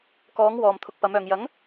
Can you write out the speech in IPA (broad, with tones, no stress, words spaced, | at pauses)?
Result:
kɔː˨˥ŋ wɔː˨m t̪ʰʊ˧k̚pɐ˨˥mœː˨ŋ jɐ˨˥ŋ